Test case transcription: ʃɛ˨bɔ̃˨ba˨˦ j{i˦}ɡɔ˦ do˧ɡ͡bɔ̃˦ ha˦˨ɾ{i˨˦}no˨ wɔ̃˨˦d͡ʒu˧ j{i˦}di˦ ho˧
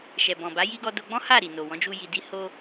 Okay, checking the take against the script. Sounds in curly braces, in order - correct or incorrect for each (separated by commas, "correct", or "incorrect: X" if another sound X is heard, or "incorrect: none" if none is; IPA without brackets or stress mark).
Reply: correct, incorrect: i˨, incorrect: i˧